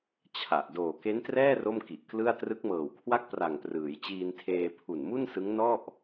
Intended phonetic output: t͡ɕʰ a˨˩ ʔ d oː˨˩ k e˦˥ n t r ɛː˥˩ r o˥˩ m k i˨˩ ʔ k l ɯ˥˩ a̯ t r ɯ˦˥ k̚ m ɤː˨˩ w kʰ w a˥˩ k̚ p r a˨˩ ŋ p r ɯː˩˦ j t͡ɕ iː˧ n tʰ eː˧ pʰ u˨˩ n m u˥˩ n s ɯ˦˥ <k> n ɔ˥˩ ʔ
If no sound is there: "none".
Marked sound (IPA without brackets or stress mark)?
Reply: ŋ